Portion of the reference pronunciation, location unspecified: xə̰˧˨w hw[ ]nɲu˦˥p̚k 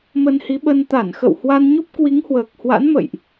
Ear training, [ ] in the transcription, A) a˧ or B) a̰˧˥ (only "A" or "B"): A